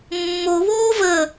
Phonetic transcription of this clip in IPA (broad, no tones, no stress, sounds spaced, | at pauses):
mː o β oː v ə